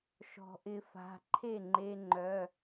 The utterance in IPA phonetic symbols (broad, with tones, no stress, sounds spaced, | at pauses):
ʃ ɔ̤˩ ʔ ɪ˨˩˦ f a̤˩˧˩ ǃʰ e˥˩ ŋ͡ǃ e˧ ŋ͡ǃ œ˩˧˩